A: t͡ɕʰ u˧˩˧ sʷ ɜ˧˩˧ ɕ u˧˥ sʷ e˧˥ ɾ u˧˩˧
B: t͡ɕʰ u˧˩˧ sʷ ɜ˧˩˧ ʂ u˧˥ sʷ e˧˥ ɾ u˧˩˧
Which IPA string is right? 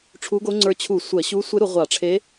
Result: A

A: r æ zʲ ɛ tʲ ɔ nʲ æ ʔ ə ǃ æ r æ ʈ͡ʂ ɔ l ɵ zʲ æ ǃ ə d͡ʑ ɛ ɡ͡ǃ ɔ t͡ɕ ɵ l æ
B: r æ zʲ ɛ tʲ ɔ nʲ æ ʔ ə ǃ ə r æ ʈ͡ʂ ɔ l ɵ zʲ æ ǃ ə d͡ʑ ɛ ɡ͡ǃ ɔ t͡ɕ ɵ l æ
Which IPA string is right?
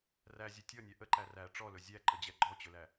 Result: A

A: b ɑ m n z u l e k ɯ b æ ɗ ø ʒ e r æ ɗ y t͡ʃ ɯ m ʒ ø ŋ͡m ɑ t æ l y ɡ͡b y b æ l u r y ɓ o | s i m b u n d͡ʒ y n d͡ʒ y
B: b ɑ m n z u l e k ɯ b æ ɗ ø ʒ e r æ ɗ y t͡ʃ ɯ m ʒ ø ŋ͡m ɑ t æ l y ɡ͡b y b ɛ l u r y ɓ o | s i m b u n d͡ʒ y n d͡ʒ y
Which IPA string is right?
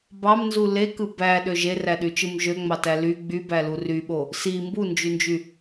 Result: A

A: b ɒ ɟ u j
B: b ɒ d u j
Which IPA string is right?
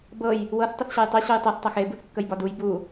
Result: B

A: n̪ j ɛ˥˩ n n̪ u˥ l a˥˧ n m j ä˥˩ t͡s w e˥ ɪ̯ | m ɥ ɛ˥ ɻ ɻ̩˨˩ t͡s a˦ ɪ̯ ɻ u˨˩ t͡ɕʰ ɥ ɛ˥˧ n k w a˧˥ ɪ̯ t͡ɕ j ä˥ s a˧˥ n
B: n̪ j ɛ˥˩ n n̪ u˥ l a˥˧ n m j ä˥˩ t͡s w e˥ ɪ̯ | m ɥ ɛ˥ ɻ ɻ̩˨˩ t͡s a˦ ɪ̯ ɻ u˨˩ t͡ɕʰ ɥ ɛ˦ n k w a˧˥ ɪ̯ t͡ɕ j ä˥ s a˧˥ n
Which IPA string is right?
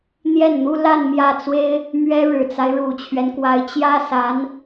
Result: B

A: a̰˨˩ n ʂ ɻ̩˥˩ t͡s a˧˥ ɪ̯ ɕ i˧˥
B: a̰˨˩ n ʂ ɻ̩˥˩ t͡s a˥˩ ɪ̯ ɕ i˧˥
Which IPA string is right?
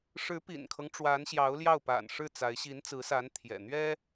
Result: A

